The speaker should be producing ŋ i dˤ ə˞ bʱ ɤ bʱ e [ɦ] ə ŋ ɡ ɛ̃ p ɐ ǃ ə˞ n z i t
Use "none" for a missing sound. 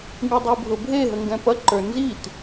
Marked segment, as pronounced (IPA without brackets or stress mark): ɦ